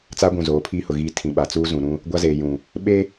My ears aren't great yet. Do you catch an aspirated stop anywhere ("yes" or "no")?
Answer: yes